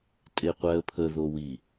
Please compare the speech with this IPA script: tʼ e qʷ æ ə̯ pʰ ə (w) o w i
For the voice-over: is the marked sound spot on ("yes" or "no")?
no